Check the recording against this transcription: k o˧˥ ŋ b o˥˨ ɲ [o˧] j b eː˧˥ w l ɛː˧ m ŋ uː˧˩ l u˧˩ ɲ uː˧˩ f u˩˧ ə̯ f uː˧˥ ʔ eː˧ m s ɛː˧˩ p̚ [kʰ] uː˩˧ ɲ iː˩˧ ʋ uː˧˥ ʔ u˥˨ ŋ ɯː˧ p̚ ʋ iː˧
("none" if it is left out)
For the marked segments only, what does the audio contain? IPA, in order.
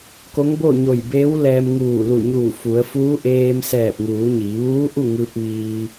o˧˩, ŋ

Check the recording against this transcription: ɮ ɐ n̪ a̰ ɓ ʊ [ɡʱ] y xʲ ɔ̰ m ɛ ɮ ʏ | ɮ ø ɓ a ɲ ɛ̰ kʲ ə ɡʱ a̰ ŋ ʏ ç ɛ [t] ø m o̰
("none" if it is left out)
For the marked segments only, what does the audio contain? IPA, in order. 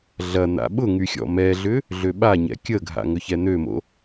ŋ, n̪

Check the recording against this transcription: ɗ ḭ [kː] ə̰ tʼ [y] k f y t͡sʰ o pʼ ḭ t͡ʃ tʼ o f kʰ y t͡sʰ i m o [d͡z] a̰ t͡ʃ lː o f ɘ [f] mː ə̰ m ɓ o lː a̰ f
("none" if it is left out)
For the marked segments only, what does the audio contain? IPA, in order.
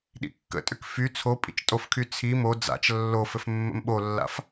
kː, ʏ, d͡z, f

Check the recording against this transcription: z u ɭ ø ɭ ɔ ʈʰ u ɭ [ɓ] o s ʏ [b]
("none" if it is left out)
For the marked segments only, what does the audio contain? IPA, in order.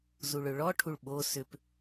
ɓ, p

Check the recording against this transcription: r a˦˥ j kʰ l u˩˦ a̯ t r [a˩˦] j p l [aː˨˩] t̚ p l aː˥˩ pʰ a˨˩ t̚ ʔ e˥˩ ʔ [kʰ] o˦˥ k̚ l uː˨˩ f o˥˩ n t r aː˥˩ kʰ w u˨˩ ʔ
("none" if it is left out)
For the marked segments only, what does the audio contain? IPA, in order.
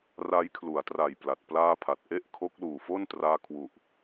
a˨˩, a˨˩, kʰ

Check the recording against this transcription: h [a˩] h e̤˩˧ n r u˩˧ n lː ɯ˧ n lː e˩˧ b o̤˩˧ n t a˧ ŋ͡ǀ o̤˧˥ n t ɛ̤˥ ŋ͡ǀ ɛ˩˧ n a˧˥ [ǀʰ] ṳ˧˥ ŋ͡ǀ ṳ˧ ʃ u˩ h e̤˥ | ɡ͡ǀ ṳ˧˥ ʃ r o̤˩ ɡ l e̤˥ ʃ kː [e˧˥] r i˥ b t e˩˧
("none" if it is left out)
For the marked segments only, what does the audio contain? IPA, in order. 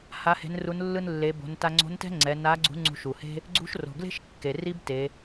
a˩˧, ɡ͡ǀ, e˩

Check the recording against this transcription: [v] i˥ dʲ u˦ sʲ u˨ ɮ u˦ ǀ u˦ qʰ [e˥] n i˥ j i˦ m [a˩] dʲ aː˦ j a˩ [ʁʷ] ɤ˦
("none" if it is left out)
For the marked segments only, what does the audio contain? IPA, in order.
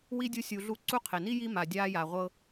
w, e˩, a˩, ʁʷ

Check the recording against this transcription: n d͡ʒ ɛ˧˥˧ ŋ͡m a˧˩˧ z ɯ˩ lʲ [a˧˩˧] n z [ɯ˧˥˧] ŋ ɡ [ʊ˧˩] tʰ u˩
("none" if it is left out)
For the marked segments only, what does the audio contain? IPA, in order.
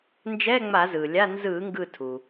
a˧˥˧, ɯ˧˩˧, ɯ˧˩

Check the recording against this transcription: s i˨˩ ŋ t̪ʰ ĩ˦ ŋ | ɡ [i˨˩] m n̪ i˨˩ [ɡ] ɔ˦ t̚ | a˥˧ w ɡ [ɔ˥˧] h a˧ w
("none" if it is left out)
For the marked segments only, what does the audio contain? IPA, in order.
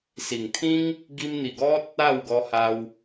i˧, ɡ, ɔ˧

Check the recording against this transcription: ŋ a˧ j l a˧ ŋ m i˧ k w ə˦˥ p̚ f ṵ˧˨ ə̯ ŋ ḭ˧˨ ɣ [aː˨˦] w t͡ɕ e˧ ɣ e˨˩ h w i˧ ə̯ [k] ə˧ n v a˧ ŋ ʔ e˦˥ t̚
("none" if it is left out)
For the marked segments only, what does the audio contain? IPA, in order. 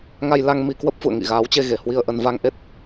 aː˨˦, ʔ

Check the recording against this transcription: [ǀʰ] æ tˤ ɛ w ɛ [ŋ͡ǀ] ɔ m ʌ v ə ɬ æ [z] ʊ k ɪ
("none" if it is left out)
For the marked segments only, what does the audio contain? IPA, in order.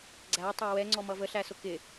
ɡ͡ǀ, ŋ͡ǀ, s

